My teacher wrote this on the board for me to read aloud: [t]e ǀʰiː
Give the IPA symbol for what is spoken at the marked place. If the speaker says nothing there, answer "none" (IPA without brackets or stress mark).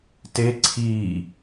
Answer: t